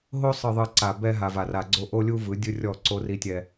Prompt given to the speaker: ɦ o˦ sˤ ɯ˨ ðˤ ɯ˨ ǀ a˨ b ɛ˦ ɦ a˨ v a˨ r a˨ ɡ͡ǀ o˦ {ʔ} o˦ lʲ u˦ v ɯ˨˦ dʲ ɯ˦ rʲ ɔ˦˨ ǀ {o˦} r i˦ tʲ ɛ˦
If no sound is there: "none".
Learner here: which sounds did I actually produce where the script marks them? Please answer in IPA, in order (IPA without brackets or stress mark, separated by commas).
ʔ, o˦